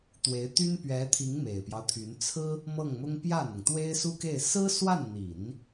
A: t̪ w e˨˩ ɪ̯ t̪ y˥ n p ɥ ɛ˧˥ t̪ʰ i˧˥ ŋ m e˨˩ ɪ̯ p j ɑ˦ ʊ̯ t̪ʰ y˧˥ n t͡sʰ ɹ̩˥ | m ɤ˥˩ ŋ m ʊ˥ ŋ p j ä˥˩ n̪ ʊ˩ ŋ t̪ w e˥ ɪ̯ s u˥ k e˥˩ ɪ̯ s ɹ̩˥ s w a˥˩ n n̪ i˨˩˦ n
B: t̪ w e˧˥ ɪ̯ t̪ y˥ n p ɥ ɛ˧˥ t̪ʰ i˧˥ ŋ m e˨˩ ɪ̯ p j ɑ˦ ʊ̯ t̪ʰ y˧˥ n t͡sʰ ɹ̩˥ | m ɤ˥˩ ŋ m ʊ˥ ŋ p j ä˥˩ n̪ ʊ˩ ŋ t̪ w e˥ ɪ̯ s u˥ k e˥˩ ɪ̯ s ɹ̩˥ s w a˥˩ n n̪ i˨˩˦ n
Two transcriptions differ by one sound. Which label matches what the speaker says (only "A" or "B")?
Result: B